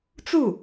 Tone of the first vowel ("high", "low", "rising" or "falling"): falling